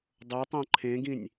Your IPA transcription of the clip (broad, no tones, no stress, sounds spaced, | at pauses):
dˤ ɤ tˤ õ ǃʰ ẽ ɡ ĩ nʲ